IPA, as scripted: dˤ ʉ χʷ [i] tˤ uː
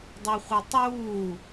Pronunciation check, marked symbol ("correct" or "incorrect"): incorrect